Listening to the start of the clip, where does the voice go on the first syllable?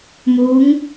rising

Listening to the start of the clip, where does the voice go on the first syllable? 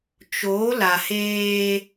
rising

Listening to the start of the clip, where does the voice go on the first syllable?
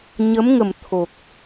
rising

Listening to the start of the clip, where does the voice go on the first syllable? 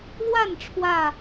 falling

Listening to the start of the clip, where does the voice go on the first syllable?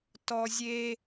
high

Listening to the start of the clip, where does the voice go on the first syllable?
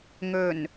low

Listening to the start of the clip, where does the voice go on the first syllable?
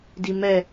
low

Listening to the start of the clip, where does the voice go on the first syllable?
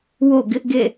falling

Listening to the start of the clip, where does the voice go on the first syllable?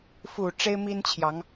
low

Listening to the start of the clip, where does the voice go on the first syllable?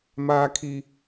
high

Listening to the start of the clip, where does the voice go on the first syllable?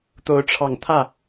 rising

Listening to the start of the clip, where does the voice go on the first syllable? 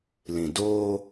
low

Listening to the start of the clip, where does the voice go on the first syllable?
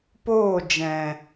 falling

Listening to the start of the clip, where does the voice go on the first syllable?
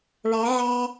rising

